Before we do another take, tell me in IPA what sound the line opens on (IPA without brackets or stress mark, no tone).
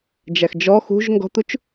d͡ʒ